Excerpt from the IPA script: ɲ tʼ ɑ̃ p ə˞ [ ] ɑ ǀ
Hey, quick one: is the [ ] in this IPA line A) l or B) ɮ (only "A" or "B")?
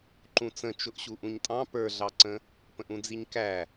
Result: B